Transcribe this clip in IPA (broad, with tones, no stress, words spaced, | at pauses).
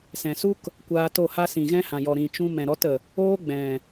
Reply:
sɛ̃˨su˦k | kʷaː˧to˦˨ha˦ sĩ˨ɣɛ̃˦hã˨ jɔ˨ɾĩ˨t͡ʃũ˧ mɛ̃˨ɾɔ˦tə˨ | oː˦ɡ͡bɛ̃˨